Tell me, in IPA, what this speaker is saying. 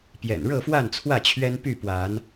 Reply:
pjɛ̰˨˩nɻɤ˥˨fwa˥˨nt͡sʰwä˥˨ t͡ɕʰɥɛ˦npy˥˨pwa˨˦n

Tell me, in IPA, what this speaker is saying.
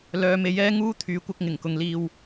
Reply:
lœː˨˧me˨˥jɛː˥ ŋuː˥t̪ʰyː˨˥kʷɐ˧k̚ ŋɪ˨˩ŋkʊ˨ŋliː˨w

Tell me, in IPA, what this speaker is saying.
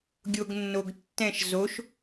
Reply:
ɡʲoɡnːoɡtːɛ̃ʃ zoʃ

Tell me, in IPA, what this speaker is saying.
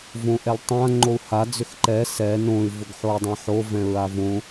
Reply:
võʔɛltˤã ŋ͡ǃou̯ha d͡zʏxǃɛ sɛ nõy̯ vʊɡħoi̯dˤãħo vɛ̃ɹavõ

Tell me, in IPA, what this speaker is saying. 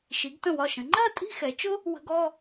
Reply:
ʃi˩˧ɡtə̃˧˩wɒ˧˩ʃə̃˩˧ ŋ͡ǃɜ˥˧ tʼi̤˥˧xɛ˩˧t͡ʃʊ˥ | wə̤˧ɡ ɔ˥˧

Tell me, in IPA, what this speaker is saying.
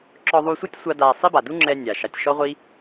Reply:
ǁɔ˧ðˤu˧sʷi˦tʲ sʷa˦da˧ sˤi˦ba˨du˦ŋ͡ǁɛ˧ nʲa˨ ʃa˨tʲʃɔ˦ʁʷi˦

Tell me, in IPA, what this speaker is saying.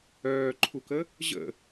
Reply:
œːǃʰukə | ʑə̰

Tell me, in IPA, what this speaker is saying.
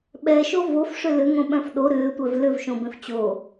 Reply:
ɓɛʃo vofʂʏ lʏŋõɓœ̃f ɗo ɾʏːtʷœv lʏvʃõbẽf t͡ɕo

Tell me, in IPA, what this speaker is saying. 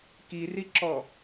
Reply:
kiriǁɔ

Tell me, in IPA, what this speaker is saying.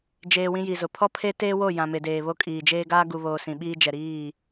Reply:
d͡ʒeː˨ wĩ˦ji˨zʊ˨ pʰɔ˦pʰe˦ teː˦wo˦˨ jã˨me˨deː˨βo˦ kʼiː˨d͡ʒeː˦ ɡaː˦ɡu˨βoː˨ sĩ˨ ɓiː˦d͡ʒɛ˨ɾiː˦˨

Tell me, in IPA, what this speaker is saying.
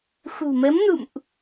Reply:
xṳ˨˩mə˨˦mnṵ˧˨mʔ

